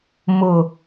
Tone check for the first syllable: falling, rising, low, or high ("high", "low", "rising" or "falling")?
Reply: low